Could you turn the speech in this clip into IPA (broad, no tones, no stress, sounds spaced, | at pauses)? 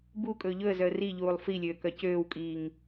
b u kʼ ɵː ʎ ɵ ə̯ z œ ə̯ r i ʎ uː lˠ f i lʲ øː k œ c øː w kʼ iː ŋ